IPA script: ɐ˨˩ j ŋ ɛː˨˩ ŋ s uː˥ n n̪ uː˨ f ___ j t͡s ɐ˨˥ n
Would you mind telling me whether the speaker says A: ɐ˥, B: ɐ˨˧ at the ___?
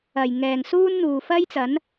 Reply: A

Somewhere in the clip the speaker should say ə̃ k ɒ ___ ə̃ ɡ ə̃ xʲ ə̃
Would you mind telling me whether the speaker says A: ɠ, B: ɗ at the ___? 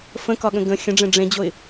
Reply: A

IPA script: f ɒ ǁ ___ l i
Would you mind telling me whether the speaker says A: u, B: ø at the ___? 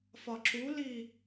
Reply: A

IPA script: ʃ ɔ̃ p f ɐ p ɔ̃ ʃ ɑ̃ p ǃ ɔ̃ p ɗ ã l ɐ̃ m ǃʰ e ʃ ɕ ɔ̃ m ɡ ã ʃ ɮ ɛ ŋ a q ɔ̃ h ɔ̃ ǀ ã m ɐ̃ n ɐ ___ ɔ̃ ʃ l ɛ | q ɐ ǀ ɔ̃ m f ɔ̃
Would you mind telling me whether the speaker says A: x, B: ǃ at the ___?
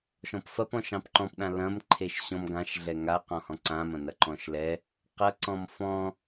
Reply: B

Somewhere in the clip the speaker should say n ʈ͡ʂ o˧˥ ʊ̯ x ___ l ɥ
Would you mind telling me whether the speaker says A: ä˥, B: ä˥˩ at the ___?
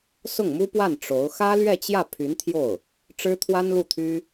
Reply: A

